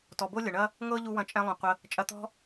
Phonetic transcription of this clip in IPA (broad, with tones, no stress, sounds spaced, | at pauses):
t ɔ˨ b o˦ lʲ ɐ˨ ɳ ɐ˦ | ŋ ɤ˦ ʎ u˧ w ɐ̃˧ t͡ʃʼ ɛ̃˧ lˠ ũ˨ qʷ ə˧ | t͡ʃʼ ɐ˧ t̪ ɔ̤˦